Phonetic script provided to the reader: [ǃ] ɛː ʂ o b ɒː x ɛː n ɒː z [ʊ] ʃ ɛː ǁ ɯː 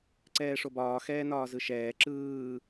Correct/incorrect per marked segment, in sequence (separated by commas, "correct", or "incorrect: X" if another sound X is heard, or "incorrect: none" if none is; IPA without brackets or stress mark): incorrect: ǀ, incorrect: ɯ